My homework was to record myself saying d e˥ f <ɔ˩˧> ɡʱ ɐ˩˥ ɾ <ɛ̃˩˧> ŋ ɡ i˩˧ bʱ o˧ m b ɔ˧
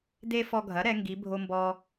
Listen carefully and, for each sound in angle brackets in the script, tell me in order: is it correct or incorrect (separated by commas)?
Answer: incorrect, incorrect